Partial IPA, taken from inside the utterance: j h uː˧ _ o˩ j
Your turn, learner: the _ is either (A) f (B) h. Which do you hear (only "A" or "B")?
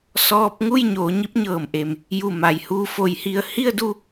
A